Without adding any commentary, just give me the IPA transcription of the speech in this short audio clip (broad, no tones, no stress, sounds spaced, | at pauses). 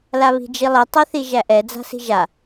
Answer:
l a β i̤ d͡ʒ i lˠ i tˤ ɛ θ i ʒ æ ʔ ɛ d͡z a̤ s i̤ ʒ a